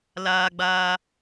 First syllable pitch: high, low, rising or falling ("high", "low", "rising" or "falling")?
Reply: high